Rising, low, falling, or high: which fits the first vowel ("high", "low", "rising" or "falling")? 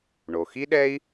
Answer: low